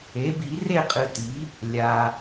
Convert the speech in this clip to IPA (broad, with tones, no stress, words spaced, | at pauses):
e˩˥bi˨˩˦ re˥˨qʼɨ˨ti˩˥ | lʲa˨